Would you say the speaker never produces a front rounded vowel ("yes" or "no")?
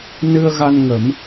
yes